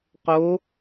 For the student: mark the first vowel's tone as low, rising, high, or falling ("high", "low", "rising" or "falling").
rising